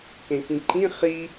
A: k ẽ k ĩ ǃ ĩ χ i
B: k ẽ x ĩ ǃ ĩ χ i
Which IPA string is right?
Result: A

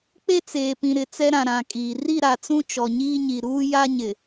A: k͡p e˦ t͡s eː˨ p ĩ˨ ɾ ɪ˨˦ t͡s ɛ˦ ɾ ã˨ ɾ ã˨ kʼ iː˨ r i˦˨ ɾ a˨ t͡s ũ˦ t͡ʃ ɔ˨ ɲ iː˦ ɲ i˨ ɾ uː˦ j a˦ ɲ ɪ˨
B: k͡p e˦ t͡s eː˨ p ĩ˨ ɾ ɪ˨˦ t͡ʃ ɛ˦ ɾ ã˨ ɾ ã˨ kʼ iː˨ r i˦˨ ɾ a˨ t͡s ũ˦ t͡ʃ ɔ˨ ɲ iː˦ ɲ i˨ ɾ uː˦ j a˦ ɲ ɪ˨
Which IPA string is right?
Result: A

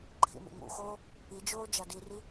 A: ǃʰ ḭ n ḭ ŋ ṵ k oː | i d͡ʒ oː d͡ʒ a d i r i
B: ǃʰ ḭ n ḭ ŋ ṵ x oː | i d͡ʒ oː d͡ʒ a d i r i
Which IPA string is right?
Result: B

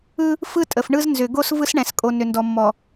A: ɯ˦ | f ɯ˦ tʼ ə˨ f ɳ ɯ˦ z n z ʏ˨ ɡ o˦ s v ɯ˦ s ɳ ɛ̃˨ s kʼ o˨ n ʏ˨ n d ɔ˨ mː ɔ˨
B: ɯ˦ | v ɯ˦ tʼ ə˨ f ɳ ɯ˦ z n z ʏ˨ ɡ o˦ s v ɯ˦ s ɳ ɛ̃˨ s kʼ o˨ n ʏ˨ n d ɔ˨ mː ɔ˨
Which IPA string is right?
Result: A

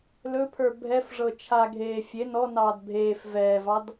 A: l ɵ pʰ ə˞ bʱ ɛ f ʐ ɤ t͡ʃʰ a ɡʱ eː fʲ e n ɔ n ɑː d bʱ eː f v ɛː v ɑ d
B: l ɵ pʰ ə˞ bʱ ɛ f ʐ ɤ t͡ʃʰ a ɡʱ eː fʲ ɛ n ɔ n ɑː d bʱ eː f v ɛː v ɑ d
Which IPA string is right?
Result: A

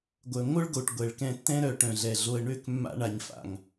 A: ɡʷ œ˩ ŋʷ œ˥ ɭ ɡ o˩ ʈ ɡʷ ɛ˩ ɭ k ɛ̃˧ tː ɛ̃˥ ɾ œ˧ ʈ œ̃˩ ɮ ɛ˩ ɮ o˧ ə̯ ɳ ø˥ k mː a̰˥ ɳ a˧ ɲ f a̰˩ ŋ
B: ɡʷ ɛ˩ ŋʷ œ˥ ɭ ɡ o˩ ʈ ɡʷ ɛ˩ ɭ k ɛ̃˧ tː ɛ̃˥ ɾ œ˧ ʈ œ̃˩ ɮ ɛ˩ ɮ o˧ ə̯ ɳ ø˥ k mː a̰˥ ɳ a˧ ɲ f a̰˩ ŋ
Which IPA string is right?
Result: A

